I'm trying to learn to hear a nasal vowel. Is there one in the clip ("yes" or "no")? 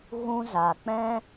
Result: yes